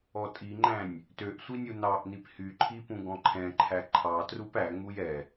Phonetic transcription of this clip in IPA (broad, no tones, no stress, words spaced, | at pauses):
ɔtʼiŋ͡ǃæ̃nʲ | tøʔsʷi nʲunɑʔnip hyǃʰi pũɡɔ̃ǃʰɛ̃ǃʰæ ǃʰɑ trupæŋ͡muj ɛ